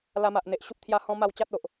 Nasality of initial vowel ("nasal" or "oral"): oral